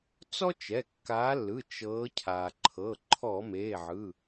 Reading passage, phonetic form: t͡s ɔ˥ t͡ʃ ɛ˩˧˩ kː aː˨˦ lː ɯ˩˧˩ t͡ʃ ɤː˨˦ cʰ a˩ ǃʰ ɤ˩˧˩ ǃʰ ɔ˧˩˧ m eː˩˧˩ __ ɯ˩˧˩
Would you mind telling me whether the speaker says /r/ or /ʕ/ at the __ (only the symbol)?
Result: ʕ